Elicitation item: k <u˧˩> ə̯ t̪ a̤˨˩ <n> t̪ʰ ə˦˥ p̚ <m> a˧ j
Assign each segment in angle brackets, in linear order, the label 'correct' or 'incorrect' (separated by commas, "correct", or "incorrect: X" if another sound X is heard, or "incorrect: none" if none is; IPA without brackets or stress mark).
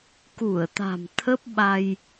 correct, incorrect: m, incorrect: ɓ